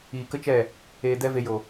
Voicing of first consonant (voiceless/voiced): voiceless